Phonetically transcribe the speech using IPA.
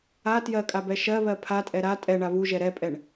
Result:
a t j ɜ kʼ a b ɛ ʃ ɜ β ɜ pʰ a tʼ ɛ ɾ a tʼ ɛ ɳ a β u ʒ ɛ ɾ ɛ pʼ ɛ ɳ

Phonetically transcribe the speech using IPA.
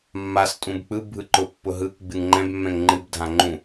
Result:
mː a s tʼ ũ b k͡p ɯ bʱ ɯ ǃ ʊ pː ʊ ɦ ɯ k ɡ͡b ɨ ŋ ŋ͡ǃ ɛ̃ b mː ɛ̃ ŋ ŋ͡ǃ ɨ b dʱ ã ŋ͡ǃ ũ

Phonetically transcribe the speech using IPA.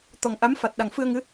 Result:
t̪ ɔ˨˩ ŋ ʔ a˨˦ m f a˨˩ t̚ ɗ a˨˩ ŋ f ɨ˧ ə̯ ŋ ɨ˨˦

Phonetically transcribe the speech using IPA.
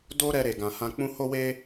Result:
d o˦ ɾ ɛ˧ ɾ e˨ ɡ ã˨ h ã˧ k͡p ũ˦ h o˦ w e˦

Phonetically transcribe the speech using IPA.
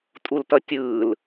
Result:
tʼ u l t ʌ tʲ ɯː l

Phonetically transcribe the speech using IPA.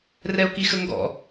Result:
r ɛ o̯ k i x ə ŋ ɡ ɔ̰

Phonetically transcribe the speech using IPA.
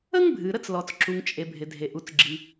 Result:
ə˥ ŋ bʱ ɨ˩ ɾ ə˥ t͡s l ɔ˩ t͡s ǁ u˩ ŋ t͡ʃʼ e˩ bʱ ɪ˩ dʱ e˩ ʔ u˩ t͡s ɡ͡ǁ i˩

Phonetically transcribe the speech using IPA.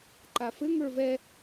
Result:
ǃ a f ɘ ŋ ə˞ v ɛ

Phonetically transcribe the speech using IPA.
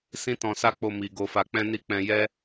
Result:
s ĩ˦ t ɔ̃˧ s a˦ k͡p o˧ m i˨ ɡ o˧ f a˧ k͡p ɛ̃˦ n i˦˨ k͡p ɛ̃˧ j ɛ˦

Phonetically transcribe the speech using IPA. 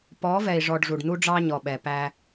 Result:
p ɔ˨˦ v ɛ˨ i̯ ʐ ɔ˨ ɖ ʐ u˨ ɖ n̪ u˦ ɖ͡ʐ ɑ˦ ɲ ɔ˨ ɓ ɛ˨ p æ˦

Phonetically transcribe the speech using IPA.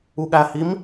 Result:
u ɠ æ h i m

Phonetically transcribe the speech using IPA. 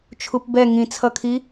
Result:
t͡ʃʰ u p b ɛ ŋ ĩ t͡sʰ ʌ kʰ i

